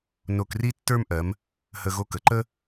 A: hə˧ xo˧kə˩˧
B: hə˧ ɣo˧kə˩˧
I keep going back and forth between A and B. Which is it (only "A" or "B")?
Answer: B